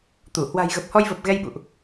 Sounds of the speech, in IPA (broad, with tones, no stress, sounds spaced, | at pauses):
t̪ u˧˩ h w a̤˨˩ j ɣ ə˨˩ p̚ h ɔ˧ j v ə˨˩ p̚ ɣ ɛ˧ j ɓ ṵ˧˨ ʔ